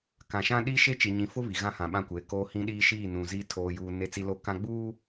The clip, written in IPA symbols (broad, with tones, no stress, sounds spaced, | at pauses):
k ã˨ ʃ ã˦ ɗ i˦ ʃ e˦ t͡ʃ i˨ ɲ ĩ˨ f ʊ˦ β i˨ ɣ ã˦ h ã˨ ɓ ã˦˨ kʷ eː˨ k oː˦ h ĩ˦ ɗ iː˦ ʃ iː˦˨ n ũ˨ z i˦ tʰ oː˦ j uː˦ n e˦ t͡s i˦ l o˦˨ k ã˦ ɡ͡b uː˦